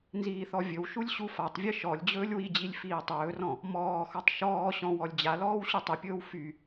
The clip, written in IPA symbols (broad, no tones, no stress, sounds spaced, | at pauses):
n z iː θ ɔ vʲ ɵ w ʃ u lʲ ɕ u f a tˤ vʲ ɨ ʃ ɔ lʲ d͡ʑ ɵː lʲ w i d͡ʑ i lʲ f iː tˤ ɵː r ɔ̃ | m ɔː x ɔ tˤ ʃ ɔː ɕ ɔ̃ w ɔ lʲ d͡ʑ a l ɔː w ɕ u tˤ ɨ pʲ ɵː w f y